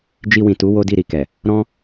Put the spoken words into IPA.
d͡ʒi˧wĩ˨tu˨˦ wo˦di˦˨ɾi˧kɛ˨ | ɾɔ̃˦

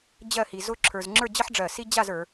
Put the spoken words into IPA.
d͡ʑɜ˥˧hi˧ zʊ˥ǁʰə˞˧z ŋ͡ǁə˞˥˧d͡ʑʌ˥ħɖ͡ʐɜ˧˩si˥ d͡ʑa˥˧zə˞˩˧

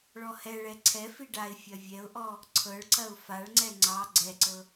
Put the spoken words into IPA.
ɭɔhɛɭɛ ǀʰɛfi ɖaɪ̯ fʲɐvʲɛʊ̯ʔɔ | ǀʰɤɭǀɐʊ̯ faɭŋ͡ǀɛ ŋ͡ǀɑ ɡ͡ǀɛǀɤ

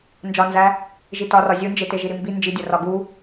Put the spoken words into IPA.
nd͡ʒɒnzæ | ʒitɒ rɒzʲund͡ʒe teʒiɾimbi nd͡ʒidʲo rɒɡu

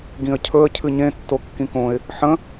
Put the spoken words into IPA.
ɡĩə̯cʰɵə̯ cʰɨɲẽ tːokːĩkõɪ̯ | ħə̃

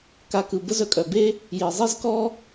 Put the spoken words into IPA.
ka˧kɯ˩ bə˥zœ˧kʼœ˩be˥ | ji˩zˤi˥zkɔ˥

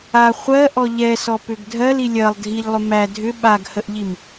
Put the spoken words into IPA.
a χʷɜʔɔ ʎɛsɔpʏɡ dʱɜli lʲɜlˠ dʱiʎlˠʏ mæ dʱʏ ɓaɡhəʔʎim

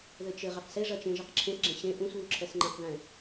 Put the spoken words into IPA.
ðɘt͡ʃɘ ʁeqseʐɐt͡ʃẽ ʒɐqǁʰẽsɡ͡ǁẽ ɕẽ ʔũsβu ǁʰɛsŋ͡ǃɛ̃qðɛ̃

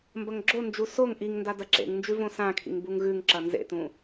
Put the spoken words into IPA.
mbɐŋɡ͡ǁond͡ʒu soŋ ʔiŋnda dɐǁḛŋnd͡ʒʉ võsãkʰḭŋ buŋɣʉŋǁɐ nzḛtũ

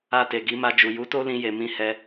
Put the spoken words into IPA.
a˧te˨ɡi˨˦ ma˧d͡ʒu˨ ju˨˦to˦lĩ˧je˨ mĩ˧hɛ˧

